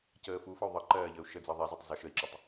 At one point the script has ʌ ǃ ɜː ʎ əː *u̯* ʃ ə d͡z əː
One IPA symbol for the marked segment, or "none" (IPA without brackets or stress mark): u̯